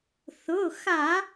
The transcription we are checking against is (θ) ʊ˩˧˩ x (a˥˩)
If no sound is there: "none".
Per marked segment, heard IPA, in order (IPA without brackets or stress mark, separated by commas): θ, a˧˩˧